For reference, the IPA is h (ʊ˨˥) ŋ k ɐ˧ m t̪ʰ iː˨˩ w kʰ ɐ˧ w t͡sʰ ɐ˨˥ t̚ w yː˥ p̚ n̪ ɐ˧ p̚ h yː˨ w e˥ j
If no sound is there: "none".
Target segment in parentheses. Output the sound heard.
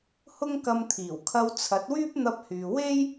ʊ˥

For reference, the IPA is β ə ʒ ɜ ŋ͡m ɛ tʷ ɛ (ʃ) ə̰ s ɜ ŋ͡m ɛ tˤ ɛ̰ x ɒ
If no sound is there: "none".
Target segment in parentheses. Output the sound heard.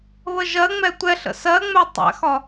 ɬ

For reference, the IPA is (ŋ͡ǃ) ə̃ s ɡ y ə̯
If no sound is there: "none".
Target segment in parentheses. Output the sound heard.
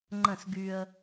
ŋ͡ǃ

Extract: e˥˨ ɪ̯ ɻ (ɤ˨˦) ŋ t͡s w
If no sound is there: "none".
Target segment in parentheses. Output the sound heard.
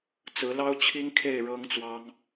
ɤ˦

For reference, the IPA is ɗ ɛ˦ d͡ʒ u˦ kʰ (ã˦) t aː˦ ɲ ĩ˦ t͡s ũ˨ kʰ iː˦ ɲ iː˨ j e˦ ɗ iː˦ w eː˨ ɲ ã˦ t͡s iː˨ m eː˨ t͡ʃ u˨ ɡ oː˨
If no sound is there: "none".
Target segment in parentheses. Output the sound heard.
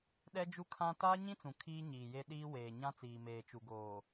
ã˦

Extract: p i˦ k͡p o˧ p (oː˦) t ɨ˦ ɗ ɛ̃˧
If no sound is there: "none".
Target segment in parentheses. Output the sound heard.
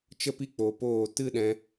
oː˦˨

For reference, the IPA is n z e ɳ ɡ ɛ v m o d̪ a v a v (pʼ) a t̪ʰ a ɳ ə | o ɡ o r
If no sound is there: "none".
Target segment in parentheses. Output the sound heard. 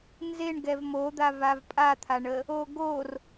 pʼ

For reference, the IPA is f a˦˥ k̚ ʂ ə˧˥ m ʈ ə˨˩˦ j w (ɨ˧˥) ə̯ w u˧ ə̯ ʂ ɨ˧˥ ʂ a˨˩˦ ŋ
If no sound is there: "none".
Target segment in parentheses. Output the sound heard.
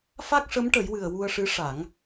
ɨ˨˩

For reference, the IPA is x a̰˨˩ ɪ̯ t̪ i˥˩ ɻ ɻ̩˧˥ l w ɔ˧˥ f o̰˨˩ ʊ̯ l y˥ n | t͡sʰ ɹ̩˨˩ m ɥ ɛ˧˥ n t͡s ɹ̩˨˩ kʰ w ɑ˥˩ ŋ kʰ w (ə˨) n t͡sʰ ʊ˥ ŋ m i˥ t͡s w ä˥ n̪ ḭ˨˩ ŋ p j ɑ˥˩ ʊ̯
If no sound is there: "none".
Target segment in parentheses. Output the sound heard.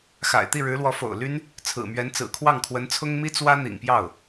ə˧˥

